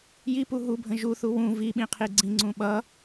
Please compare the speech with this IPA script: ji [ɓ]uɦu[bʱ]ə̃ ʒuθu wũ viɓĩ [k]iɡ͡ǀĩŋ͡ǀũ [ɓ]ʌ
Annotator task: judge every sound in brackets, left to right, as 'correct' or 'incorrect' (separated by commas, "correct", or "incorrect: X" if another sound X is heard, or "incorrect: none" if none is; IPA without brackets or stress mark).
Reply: incorrect: p, correct, incorrect: qʰ, correct